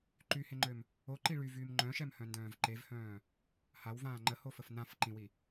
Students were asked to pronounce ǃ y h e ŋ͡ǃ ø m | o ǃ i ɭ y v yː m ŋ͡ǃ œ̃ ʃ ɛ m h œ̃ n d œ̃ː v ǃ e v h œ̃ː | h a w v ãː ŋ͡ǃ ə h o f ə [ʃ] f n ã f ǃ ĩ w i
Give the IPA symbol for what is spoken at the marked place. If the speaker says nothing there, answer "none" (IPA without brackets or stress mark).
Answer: none